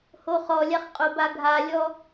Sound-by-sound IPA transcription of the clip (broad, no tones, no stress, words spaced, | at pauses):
hoχɔlʲaχ qʼobaɡʱalʲɔ